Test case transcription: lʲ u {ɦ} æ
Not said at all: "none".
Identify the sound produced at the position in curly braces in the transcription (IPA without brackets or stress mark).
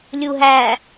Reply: ɦ